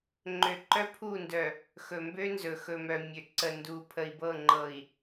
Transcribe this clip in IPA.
ŋ͡ǃ ø˨ ǃ œ˦ pʰ u˦˨ n d œ˨ | x ɵ˨ m b ø˦ n z ɵ˨ x ɵ˨ m œ˨ mʲ ø˨ ǀ ə˨ n d u˨ pʰ ə˨ i̯ b ɤ˦˨ ŋ͡ǃ ɤ˨ i̯

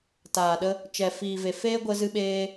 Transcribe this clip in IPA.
t aː˨ ɗ ə˧ | t͡ʃ ɛ˨ f iː˨ v e˨ f eː˦ ɡʷ ə˧ z ɨ˧ ɓ eː˧

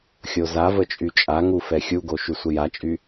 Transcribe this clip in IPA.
xʲ o z a v ə t͡ʃʼ y t͡ʃʼ a ŋ u f ɛ xʲ u ɡ o ʃ y sʷ ə j a t͡ʃʼ y

